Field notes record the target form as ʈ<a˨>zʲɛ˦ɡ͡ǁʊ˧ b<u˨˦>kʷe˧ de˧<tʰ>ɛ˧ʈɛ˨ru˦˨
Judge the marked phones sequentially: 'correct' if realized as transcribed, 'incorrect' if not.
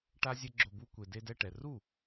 incorrect: a˦, incorrect: u˦, incorrect: d

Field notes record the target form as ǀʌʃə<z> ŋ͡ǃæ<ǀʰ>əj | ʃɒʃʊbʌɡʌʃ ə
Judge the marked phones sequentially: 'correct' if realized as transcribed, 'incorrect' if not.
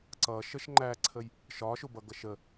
incorrect: ʃ, correct

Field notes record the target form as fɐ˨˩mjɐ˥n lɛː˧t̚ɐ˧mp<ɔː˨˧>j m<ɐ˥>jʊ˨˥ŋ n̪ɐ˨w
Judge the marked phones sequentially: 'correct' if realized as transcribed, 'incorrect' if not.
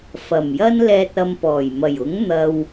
incorrect: ɔː˨˩, incorrect: ɐ˨˩

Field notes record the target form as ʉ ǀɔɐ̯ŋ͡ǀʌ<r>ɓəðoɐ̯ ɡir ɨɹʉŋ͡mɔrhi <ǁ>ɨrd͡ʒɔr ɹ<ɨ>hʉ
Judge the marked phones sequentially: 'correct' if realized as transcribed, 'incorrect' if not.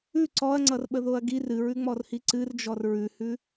correct, incorrect: ǀ, incorrect: ʉ

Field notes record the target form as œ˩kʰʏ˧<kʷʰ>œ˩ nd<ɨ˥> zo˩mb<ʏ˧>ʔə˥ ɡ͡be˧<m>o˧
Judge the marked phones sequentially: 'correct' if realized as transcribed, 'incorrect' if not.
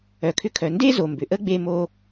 incorrect: kʰ, incorrect: e˥, incorrect: ʏ˩, correct

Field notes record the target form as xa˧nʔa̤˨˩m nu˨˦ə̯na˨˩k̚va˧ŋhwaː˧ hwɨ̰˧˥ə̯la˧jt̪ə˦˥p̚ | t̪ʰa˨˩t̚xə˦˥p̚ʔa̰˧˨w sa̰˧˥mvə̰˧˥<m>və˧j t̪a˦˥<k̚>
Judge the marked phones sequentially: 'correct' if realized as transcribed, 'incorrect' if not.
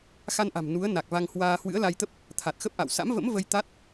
correct, incorrect: t̚

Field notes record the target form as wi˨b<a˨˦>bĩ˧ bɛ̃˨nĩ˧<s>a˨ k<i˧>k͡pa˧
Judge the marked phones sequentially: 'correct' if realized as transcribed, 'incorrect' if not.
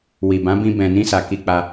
incorrect: ã˨˦, correct, correct

